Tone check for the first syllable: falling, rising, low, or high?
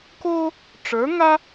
high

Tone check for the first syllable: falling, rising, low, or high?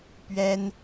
high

